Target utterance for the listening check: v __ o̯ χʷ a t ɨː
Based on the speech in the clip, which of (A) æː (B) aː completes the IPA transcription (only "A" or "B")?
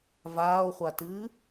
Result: B